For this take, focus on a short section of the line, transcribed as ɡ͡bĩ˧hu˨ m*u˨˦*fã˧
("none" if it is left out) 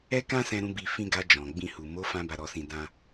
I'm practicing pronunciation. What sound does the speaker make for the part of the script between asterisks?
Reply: o˨˦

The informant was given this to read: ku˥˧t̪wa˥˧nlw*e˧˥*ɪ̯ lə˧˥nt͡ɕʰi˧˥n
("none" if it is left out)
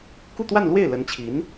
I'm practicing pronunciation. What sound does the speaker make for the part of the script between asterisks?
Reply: e˥˩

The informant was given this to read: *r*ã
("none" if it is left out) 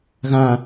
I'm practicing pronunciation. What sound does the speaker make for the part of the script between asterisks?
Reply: ɣ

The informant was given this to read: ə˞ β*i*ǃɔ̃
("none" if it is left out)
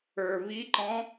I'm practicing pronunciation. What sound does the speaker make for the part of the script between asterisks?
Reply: i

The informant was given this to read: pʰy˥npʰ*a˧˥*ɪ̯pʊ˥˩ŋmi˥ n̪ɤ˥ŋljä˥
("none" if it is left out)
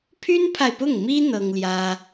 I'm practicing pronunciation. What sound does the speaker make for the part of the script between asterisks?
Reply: a˨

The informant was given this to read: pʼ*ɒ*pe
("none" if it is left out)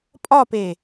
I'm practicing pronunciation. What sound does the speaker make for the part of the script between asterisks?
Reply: ɒ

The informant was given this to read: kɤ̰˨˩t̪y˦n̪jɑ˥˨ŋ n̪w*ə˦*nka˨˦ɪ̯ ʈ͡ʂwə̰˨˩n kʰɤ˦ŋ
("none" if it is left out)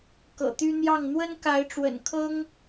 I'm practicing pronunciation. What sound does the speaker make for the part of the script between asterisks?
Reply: ə˦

